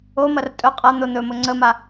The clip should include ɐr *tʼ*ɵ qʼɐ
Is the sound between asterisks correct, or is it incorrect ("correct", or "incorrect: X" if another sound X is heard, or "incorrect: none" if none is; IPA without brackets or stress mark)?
correct